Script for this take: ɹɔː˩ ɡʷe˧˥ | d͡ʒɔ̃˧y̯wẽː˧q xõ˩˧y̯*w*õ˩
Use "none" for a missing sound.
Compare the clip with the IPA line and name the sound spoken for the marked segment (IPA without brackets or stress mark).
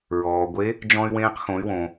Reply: w